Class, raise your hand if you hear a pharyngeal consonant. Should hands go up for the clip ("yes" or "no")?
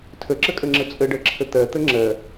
no